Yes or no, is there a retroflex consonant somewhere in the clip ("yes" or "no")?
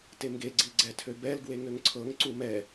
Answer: no